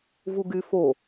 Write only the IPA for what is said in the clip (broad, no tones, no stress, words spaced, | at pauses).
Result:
vuɡyfo